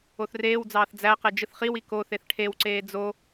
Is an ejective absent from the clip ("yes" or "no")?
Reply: yes